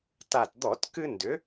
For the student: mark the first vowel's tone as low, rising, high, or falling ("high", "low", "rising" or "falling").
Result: low